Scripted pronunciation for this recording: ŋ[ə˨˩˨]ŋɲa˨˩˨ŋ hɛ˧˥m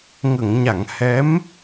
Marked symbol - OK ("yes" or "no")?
yes